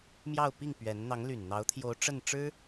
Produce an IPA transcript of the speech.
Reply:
m j ɑ˥˧ ʊ̯ p i˥˩ ŋ p ɥ ɛ˧˥ n n̪ ɑ˧˥ ŋ l y˨˩ n n̪ ɑ˧˥ ʊ̯ t̪ʰ j o˧˥ ʊ̯ ʈ͡ʂ ə˥˩ n ʈ͡ʂ ɻ̩˥

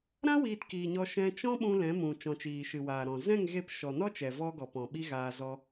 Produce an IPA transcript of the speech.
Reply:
ɾ ã˦ w iː˧ t k iː˨ ɲ ɔ˧ ʃ ɛ̃˧ t͡ʃ ɔ̃˦ ɓ ũ˧ l ɛ̃˨˦ m ũ˨ t͡ʃ ɔ̃˨ t͡ʃ iː˨ ʃ ɨ˨ w aː˨ ɾ ɔ̃˨ z ɛ̃˦˨ ŋ ɣ e˧ p ʃ ɔ˨ n ɔ˦ t͡ʃ ɛ˨ v ɔ˧ ɡ ɔ˨ p ɔ̃˨ ɓ i˧ ɣ aː˧ z ɔ˧

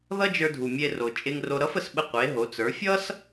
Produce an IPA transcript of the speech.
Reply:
ð ʌ˥ d͡ʒ ə˞˧ dʱ u˩ mʲ e˧ r o˩ t͡ʃʼ e˧ ŋ r o˧ ɾ ʌ˧˥ f ə˩ s ɓ ə˧ qʷ e˩˧ ɦ o˩˧ t͡s ə˞˩˧ fʲ ʌ˥ s

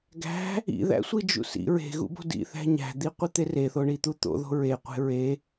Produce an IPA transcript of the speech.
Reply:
ɡ æ̤ | ḭ ð æ̰ sʷ i d͡ʒ ṵ s ḭ ɹ e̤ ɣ ṵ b o̤ d ḭ θ æ̤ ɲ æ̤ d̪ i qʷ i t̪ e r e θ o ɳ i t̪ u t̪ o̰ ð o̤ ɹ e qʷ e̤ ɹ e

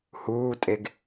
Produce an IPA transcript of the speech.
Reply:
h uː tʼ e ɡ

